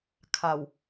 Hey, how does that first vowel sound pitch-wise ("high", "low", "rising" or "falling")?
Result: low